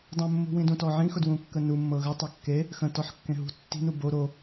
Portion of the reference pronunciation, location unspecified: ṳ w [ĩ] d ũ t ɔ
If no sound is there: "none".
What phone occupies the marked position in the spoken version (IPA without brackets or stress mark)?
ĩ